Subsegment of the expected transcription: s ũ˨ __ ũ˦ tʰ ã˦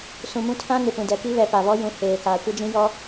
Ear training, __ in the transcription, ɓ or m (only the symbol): m